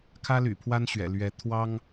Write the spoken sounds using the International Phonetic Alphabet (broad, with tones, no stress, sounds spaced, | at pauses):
kʰ ä˥ l y̰˨˩ pʰ w a˥ n ɕ ɥ ɛ̰˨˩ l ɥ ɛ˧˥ t̪ʰ w ɑ˥ ŋ